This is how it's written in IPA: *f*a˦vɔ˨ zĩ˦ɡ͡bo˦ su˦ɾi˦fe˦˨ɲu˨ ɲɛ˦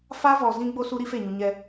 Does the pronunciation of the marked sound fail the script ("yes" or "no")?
no